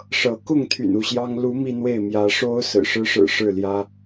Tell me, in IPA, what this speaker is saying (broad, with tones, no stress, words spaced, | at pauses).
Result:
ʂɤ˨˦ kʊ˥˨ŋt̪ʰy̰˨˩n u˥˨ɕjɑ˦ŋ lu˨˦ mi˦n̪we˥˨ɪ̯ mjä˨˦ʂo˦ʊ̯ sɹ̩˨˩ʂɻ̩˦ʂɻ̩˨˩ ʂɻ̩˥˨ljä˦